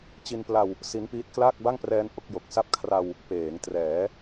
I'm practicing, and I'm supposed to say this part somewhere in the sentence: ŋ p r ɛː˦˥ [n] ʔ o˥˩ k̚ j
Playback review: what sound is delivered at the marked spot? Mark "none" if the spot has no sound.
n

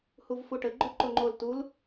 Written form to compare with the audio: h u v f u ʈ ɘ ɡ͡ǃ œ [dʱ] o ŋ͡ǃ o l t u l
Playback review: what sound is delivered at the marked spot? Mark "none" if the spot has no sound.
ǃ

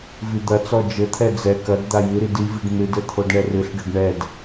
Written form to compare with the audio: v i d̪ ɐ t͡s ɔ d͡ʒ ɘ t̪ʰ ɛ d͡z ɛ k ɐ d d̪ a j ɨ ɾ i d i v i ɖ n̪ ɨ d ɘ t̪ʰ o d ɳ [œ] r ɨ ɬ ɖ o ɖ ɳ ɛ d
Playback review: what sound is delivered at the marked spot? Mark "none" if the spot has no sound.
ɛ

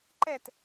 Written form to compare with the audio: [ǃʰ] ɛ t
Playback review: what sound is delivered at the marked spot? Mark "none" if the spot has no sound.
ǃ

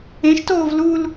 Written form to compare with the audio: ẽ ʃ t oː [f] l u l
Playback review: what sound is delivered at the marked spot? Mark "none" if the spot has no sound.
v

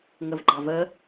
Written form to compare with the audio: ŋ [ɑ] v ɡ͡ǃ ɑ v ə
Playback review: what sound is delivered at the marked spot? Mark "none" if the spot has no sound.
ə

